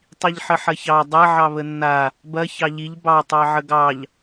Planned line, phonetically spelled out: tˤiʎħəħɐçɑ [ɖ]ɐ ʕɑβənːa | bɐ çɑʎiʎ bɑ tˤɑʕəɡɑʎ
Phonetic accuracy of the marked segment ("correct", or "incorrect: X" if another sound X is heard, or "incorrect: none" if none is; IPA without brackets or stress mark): incorrect: dˤ